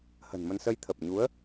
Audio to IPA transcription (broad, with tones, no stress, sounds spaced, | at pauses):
h ə̤˨˩ n m ə˧ n s ə˧ j t̪ʰ ə˨˩ p̚ ɲ u˨˦ ə̯